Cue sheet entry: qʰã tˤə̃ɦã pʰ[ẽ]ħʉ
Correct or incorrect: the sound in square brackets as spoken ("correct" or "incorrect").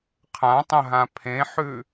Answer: correct